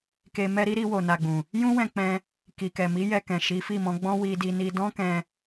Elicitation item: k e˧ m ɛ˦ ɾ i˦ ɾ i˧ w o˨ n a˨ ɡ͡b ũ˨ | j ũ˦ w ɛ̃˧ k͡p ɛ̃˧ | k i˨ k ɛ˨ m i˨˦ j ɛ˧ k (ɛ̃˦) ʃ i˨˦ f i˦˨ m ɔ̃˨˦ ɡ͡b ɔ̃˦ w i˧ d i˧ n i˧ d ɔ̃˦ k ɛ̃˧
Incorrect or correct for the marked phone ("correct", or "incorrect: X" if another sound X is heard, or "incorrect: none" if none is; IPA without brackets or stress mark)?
incorrect: ɛ̃˨